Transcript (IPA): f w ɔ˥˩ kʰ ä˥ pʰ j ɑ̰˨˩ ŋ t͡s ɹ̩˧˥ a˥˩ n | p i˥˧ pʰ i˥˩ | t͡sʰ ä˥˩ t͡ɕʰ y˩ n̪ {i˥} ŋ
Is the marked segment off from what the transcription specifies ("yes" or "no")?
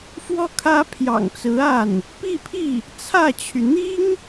no